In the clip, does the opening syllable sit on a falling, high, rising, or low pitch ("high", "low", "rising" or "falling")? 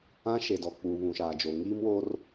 high